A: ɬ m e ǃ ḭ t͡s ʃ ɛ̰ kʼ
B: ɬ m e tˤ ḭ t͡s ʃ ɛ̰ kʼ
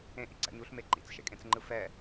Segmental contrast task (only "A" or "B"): A